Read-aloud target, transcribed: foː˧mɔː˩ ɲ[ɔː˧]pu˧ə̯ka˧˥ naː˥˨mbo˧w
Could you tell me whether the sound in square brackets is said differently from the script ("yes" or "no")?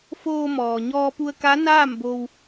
no